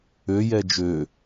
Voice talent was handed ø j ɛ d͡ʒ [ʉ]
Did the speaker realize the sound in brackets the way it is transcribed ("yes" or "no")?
no